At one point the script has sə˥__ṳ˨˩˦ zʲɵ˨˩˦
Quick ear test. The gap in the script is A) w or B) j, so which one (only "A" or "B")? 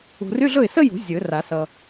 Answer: B